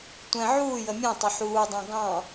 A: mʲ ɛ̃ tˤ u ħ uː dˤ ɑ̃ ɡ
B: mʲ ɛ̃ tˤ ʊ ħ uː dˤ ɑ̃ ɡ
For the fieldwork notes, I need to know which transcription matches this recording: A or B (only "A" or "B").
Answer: B